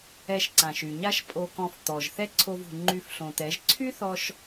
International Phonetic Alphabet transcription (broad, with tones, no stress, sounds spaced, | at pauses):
ɛ˧ ʃ ǀ ã˨ ʃ y˨ ɲ a˦ ʃ pʼ o˧ k ɔ̃˧ f t̪ ɔ˨ ʒ θ ɛ˦ ǀʰ o˧ v ṳ˨ ŋ͡ǃ y˧ f ɬ õ˨ t̪ ɛ˨˦ ʒ ǀʰ y˦ θ ɔ˧ ʃ